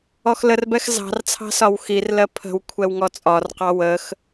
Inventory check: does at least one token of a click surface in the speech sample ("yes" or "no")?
no